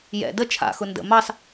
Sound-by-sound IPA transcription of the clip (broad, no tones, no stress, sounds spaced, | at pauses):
j ɛ̰ d ə t͡ʃʰ a̰ x ʊ n d ə̰ m ɑ s